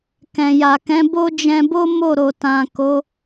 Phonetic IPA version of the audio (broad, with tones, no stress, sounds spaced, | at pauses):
k ɛ̃˨ j a˨ k ɛ̃˨˦ b o˦ d͡ʒ ɛ̃˧ b o˦ m o˦˨ ɾ o˨ t ã˨ k o˨˦